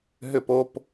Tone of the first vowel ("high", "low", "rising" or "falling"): falling